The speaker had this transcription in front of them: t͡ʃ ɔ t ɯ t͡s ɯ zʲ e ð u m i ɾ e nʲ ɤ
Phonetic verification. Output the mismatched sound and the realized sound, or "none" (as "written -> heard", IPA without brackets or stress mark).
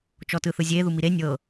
t͡s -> θ